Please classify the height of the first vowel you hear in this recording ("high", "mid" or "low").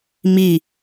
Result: high